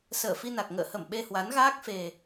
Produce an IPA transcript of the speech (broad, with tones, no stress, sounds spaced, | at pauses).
s əː˧˩ f i˧ n a˨˩ k̚ ŋ ə̰ː˧˨ h ə˧˩ m ɓ e˧ h w a˨˦ n ɣ aː˦˥ k̚ f e˨˩